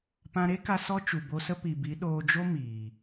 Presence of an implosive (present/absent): present